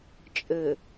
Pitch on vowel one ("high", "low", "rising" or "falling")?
low